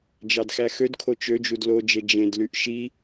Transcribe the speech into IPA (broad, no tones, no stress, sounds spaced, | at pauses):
d͡ʒ ɑ d x æ x ø d kʰ o t͡ʃ ø d͡ʒ u d l o d͡ʒ e d͡ʒ ẽ d l y ʔ ʃ i